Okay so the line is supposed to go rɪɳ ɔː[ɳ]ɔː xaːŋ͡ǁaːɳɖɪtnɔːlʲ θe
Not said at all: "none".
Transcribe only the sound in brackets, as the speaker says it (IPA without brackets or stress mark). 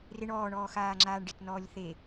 ɳ